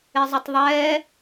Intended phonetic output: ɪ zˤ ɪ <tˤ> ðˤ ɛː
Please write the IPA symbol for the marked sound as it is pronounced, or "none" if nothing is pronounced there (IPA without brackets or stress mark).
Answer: tˤ